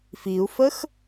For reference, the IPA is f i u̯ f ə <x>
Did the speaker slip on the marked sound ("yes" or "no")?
no